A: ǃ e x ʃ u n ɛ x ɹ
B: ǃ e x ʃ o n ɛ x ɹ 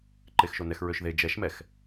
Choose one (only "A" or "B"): B